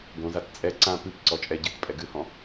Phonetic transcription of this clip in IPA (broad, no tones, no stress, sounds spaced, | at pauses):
ɡ õ z a t t͡sʼ ɛ ǀ ã p ɨ p ǀ ɔ t͡ʃʼ ɛ ɟ ɨ t pʼ ɛ ɡ ɨ h ɔ̃